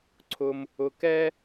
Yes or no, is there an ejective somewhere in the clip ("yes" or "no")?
no